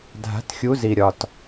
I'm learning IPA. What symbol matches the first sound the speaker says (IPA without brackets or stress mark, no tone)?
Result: dʱ